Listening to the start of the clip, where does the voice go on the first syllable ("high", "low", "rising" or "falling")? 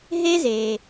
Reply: high